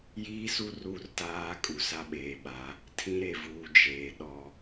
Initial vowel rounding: unrounded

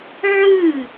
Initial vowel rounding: rounded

